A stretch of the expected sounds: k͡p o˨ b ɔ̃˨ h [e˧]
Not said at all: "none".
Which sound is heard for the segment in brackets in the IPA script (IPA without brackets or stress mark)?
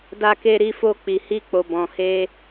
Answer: e˧